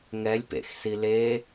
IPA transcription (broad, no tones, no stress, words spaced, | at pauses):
ŋɛlʲ pḛxsi le